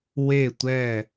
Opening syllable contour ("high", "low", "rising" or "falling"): falling